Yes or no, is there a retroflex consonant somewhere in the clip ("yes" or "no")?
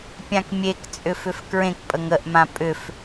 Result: no